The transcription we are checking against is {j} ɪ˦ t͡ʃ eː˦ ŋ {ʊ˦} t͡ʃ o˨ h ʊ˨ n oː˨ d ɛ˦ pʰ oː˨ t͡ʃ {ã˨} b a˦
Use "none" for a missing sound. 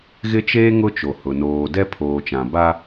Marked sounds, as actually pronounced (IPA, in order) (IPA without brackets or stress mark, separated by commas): ɣ, ʊ˦, ã˨